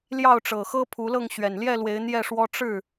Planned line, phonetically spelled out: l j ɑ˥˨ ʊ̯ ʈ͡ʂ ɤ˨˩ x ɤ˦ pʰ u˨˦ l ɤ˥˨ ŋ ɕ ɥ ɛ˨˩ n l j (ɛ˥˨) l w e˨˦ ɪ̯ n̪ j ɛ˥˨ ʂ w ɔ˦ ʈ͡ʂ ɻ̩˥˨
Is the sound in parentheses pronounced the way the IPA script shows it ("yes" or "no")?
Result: yes